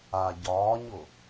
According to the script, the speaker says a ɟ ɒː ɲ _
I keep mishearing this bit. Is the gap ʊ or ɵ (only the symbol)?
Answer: ʊ